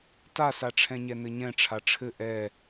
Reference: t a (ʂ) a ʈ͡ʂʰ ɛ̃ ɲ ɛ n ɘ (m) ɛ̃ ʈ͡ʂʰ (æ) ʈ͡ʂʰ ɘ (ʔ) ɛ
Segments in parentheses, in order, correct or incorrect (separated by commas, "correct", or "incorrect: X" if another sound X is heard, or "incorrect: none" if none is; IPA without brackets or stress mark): incorrect: s, incorrect: ɲ, incorrect: a, correct